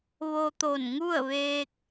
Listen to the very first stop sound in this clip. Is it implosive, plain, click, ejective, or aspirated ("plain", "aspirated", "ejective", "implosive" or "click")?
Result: plain